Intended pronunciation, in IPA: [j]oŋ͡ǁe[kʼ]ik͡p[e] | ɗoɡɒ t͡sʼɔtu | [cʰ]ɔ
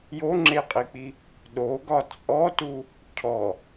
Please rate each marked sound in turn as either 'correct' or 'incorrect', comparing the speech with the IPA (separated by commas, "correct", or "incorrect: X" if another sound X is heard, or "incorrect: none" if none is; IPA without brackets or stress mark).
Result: correct, incorrect: qʼ, incorrect: i, correct